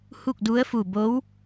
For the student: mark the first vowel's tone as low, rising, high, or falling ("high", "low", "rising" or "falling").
falling